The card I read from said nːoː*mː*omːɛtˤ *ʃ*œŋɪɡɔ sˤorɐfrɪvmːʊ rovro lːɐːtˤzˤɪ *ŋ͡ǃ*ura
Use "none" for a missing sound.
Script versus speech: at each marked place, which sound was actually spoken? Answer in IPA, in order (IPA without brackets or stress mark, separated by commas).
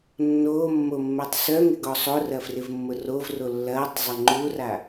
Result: mː, s, ŋ͡ǃ